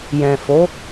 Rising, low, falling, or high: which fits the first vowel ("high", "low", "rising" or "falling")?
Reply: low